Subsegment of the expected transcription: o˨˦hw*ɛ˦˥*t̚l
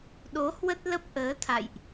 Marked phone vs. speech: incorrect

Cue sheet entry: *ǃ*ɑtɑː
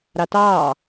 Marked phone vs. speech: incorrect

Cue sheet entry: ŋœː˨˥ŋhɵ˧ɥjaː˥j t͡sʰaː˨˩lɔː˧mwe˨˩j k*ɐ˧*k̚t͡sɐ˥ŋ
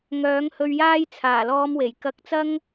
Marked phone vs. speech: correct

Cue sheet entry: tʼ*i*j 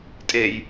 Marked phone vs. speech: incorrect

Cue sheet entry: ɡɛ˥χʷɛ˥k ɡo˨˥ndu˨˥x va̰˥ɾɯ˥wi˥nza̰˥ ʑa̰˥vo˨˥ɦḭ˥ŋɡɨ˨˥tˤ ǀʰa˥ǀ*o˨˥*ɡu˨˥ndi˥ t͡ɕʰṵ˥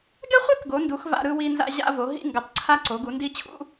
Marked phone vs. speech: correct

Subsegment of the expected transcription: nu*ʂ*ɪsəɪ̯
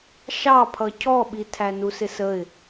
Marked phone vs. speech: incorrect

